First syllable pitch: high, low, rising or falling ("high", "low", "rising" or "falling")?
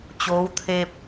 rising